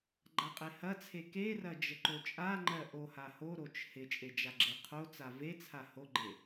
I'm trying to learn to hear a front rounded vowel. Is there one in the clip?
no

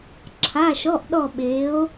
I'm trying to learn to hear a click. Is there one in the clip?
yes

